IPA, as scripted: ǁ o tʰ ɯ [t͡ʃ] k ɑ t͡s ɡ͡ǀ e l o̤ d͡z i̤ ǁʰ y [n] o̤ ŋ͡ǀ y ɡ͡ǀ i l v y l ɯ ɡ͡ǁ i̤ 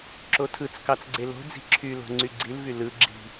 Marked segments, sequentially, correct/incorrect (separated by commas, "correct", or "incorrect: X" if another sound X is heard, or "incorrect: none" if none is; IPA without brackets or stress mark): incorrect: t͡s, incorrect: l